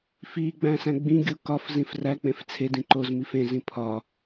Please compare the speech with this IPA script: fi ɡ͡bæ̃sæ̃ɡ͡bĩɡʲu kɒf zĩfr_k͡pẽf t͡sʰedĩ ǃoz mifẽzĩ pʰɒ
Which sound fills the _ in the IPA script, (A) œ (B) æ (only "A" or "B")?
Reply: B